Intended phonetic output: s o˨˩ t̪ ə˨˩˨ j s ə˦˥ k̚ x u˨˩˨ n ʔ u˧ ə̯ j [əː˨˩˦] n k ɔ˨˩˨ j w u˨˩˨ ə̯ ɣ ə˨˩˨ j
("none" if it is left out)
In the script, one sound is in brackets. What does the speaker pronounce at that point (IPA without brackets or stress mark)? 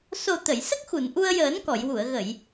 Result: əː˨˩˦